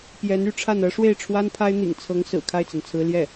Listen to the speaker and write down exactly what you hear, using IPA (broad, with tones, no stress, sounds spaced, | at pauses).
p j ɛ˧˥ n y˥˧ ʈ͡ʂʰ a˥˩ n ɤ˥ ʂ w e˥˩ ɪ̯ ʈ͡ʂʰ w a˥ n pʰ a˥ ɪ̯ n̪ ḭ˨˩ ŋ t͡sʰ ɤ˧˥ ŋ s ɹ̩˨˩ kʰ a˥˩ ɪ̯ t͡s a˩ n t͡sʰ ɹ̩˧˥ l j ɛ˥˩